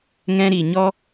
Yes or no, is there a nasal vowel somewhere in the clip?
yes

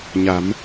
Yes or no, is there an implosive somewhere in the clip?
no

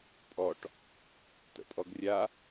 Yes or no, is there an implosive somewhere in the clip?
no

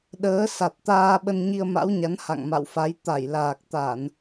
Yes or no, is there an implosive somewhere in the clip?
yes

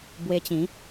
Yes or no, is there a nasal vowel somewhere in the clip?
yes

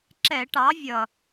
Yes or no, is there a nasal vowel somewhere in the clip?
no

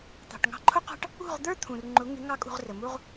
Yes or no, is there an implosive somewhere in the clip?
no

